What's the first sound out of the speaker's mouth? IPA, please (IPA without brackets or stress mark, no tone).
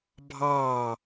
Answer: bʱ